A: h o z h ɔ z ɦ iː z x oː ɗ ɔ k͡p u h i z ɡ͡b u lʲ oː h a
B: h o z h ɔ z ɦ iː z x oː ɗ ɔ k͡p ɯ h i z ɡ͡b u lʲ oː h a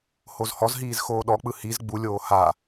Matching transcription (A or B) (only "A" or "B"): B